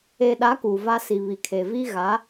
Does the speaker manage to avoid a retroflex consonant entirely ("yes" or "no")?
yes